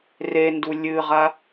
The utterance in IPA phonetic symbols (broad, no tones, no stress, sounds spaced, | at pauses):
r e n d u lʲ ɨ ʁ a